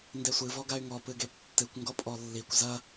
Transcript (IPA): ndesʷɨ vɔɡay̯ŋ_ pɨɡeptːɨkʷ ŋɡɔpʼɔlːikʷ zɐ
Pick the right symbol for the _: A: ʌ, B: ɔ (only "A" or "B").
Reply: B